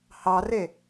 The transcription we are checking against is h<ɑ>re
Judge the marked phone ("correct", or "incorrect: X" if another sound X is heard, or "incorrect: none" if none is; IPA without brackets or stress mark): correct